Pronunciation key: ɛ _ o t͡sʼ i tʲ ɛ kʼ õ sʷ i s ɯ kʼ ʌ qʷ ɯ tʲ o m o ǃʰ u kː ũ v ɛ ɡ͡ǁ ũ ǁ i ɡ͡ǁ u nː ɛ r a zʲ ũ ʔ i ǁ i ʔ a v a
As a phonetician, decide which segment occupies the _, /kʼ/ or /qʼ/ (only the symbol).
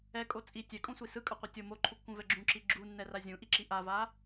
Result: kʼ